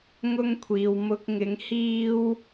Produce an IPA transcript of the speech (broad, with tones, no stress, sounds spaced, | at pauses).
ŋ ʊ˥ ŋ kʷʰ iː˨ w m ʊ˧ k̚ ŋ ɪ˨˧ ŋ h iː˥ w